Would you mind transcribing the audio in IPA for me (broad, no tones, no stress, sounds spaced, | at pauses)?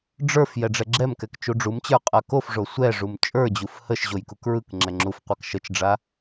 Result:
ɖ͡ʐ ə˞ f j ɛ ɖ͡ʐ ɛ ɡ͡ǁ ɛ m k ɛ k t͡ʃ u ɖ͡ʐ u m t͡ɕ ə˞ qʼ a k o f ʐ o sʷ ɛ ʐ u m t͡ʃʼ ə˞ d͡ʑ u f h ə ʃ ʑ o j k u k ɹ ɯ k ŋ͡ǁ ɛ ŋ͡ǁ u f qʷ a k ʃ ə t͡ʃ ɖ͡ʐ a